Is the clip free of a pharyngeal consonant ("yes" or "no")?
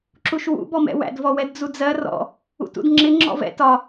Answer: yes